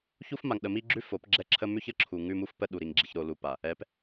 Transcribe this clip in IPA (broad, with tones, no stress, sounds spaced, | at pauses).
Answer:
ç u˦ f m a˨ ŋ ɗ ə˨ m i˦ ɡ͡ǁ ʉ˦ f o˨˦ p ɡ͡ǁ ɛ˦ ǁʰ ə˦ m ʉ˦ ç ə˨ ǁʰ u˨ ŋ ʉ˦ m u˦ f p ə˦ ɗ u˨ ɾ i˨ ŋ ɡ͡ǁ i˨ ç ɾ o˨ l u˨ p a˨ | ɛ˨˦ p